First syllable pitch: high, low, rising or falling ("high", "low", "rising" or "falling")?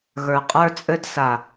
low